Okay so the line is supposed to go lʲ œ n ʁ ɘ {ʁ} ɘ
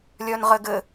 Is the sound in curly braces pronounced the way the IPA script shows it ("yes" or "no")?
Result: no